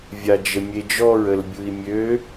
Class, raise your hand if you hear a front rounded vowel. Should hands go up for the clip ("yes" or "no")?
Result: yes